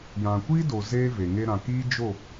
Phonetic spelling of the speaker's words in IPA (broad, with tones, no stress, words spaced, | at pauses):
jã˨kʷiː˦do˨ zeː˦ve˨ ŋe˧ɾã˨kiː˦ d͡ʒo˦˨